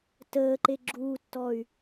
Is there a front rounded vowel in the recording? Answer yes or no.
yes